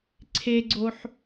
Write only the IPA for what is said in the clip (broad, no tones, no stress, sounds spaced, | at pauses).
ǀʰ e ɡ͡ǀ o ħ